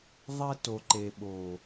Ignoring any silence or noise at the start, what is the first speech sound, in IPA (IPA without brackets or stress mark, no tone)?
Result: ðˤ